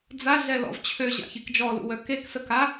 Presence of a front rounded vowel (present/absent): present